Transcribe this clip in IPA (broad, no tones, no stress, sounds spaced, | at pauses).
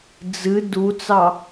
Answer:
d͡z ɨ d u t͡s ɑ